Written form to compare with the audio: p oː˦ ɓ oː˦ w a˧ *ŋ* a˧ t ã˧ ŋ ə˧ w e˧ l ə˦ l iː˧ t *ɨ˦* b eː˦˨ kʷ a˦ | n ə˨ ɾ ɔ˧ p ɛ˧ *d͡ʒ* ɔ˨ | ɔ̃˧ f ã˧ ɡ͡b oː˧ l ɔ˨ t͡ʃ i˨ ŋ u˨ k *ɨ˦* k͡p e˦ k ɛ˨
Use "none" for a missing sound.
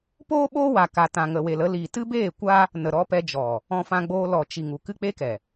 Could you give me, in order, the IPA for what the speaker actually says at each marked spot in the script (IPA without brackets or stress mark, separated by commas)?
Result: k, ɨ˦, d͡ʒ, ɨ˦